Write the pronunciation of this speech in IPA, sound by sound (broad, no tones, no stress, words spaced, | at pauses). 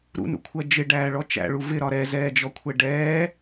ɾṵnṵkʷʰɜ d͡ʒɪɖæːɭɔ t͡ʃæ̰ɭu vɪɾɒ ɾɛzɛːd͡ʒɔkʷʰɛ ɖɛː